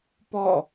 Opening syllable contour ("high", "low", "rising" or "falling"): falling